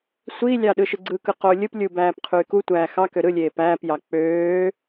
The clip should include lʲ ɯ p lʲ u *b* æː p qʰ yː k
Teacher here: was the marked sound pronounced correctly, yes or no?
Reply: yes